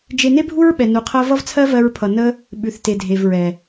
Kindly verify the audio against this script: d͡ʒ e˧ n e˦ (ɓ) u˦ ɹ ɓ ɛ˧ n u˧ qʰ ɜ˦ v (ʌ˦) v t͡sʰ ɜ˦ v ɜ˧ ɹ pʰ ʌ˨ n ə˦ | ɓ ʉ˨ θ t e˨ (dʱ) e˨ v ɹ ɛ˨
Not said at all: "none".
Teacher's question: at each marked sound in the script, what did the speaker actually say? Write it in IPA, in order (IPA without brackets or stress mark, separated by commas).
bʱ, ʌ˦, dʱ